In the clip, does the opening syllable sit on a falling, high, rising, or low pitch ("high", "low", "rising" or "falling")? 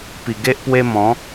low